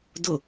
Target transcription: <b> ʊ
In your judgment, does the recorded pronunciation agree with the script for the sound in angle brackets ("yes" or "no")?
no